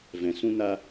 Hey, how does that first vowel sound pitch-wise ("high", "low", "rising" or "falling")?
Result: low